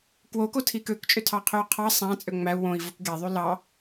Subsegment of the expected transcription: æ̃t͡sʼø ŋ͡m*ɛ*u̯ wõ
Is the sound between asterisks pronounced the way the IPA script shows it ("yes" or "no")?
no